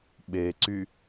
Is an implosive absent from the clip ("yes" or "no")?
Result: no